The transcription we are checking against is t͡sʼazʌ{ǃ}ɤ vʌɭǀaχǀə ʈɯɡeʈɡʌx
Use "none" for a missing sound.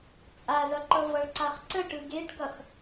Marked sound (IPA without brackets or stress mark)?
ǃ